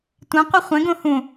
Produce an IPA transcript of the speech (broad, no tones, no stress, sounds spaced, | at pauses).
tʷ ẽ qʷ ɨ χʷ ẽ ɡ õ h ũ